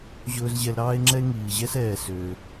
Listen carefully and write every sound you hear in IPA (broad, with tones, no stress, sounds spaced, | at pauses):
ʑ ɵː˥ z ʑ ɛ˦ l ɾ ɑː˥ e̯ ŋ͡ǁ ɛ˥ e̯ ŋ iː˨ ʑ ɛ˥ s ɛː˨ s øː˩